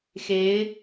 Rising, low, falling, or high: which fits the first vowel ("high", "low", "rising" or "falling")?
rising